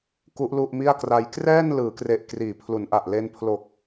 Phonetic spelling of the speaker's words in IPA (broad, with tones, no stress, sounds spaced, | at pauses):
k u˦˥ ʔ l u˥˩ ʔ m i˥˩ a̯ k r a˦˥ j k r ɛː˥˩ n l ɯː˩˦ k r e˨˩ ʔ k r iː˨˩ pʰ l u˩˦ n ʔ a˨˩ ʔ l e˧ n pʰ l oː˨˩ k̚